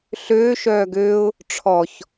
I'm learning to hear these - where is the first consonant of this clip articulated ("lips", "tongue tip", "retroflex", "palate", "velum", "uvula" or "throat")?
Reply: tongue tip